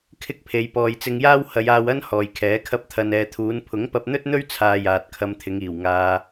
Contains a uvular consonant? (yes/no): no